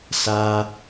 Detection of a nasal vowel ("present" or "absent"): absent